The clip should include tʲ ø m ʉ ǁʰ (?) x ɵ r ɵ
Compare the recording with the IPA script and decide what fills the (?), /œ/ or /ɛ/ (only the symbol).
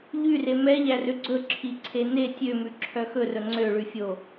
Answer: œ